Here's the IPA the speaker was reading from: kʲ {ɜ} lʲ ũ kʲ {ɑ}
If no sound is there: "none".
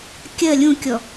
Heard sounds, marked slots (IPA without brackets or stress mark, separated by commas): ɜ, ɔ